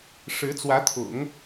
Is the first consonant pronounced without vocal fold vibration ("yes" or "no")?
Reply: yes